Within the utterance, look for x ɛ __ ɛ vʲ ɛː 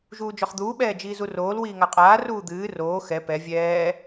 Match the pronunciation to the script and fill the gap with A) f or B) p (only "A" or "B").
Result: B